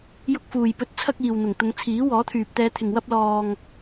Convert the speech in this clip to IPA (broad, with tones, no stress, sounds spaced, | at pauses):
j ʊ˧ k̚ f uː˨ j p ɵ˨˥ t̚ t͡sʰ ɐ˧ k̚ iː˨ w n̪ ʊ˨˩ ŋ t̪ ʊ˨˧ ŋ t͡sʰ iː˨˥ w ɔː˨˥ t̪ʰ yː˨ p̚ t̪ ɛː˨˧ t̪ʰ ɪ˨ ŋ w ɐ˧ p̚ l ɔː˨ ŋ